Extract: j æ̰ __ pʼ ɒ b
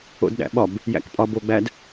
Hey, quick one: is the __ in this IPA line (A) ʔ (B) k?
B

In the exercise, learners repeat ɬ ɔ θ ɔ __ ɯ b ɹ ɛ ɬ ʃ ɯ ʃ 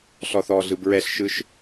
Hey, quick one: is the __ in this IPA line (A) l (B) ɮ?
B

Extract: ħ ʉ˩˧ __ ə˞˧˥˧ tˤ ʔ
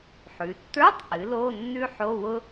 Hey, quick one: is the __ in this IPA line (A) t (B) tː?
B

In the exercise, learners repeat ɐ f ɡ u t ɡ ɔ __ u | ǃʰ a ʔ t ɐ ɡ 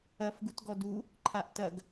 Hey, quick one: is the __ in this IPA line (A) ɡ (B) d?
B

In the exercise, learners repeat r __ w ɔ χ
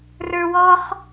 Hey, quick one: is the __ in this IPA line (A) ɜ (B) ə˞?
B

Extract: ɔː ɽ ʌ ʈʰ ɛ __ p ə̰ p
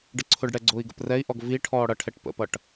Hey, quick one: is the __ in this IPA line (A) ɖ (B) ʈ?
B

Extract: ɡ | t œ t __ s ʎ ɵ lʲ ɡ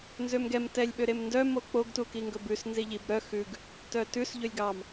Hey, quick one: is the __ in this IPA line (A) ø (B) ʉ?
B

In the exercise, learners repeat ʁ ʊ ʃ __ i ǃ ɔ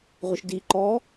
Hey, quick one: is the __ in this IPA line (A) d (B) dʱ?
A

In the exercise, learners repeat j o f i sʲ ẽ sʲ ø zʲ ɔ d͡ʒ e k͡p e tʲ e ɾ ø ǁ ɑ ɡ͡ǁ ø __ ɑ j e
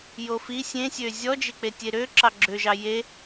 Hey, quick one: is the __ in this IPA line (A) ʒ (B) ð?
A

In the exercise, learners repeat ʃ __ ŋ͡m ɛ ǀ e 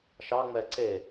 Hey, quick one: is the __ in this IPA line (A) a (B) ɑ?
B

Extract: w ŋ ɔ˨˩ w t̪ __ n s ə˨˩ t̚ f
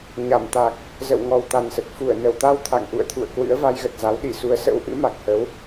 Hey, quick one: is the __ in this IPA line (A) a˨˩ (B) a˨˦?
A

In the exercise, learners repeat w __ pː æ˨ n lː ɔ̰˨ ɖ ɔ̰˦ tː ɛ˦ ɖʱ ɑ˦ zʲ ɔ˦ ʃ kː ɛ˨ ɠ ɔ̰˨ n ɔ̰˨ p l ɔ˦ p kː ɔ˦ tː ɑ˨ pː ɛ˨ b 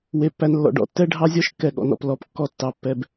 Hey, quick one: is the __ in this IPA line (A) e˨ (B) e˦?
A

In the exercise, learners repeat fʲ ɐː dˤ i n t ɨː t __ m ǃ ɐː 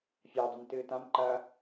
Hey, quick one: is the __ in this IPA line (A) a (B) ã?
B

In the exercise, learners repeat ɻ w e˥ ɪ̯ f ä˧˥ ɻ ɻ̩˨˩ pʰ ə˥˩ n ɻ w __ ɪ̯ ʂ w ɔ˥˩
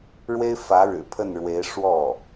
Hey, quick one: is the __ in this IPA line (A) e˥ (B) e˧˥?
B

